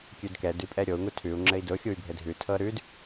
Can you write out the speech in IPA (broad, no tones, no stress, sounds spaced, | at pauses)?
kʲ ʉ d k ɛ d ʉ pʼ ɛ ɾʲ o u̯ ŋ u tʰ ʉ u̯ ŋ͡ǁ ɘ i̯ d ʊ xʲ u y̯ bʱ ɘ dʱ ʉ tʰ ɤ ɾ ʉ d